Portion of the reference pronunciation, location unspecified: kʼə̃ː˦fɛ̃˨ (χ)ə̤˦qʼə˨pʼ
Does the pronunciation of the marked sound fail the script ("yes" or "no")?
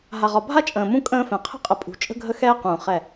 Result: yes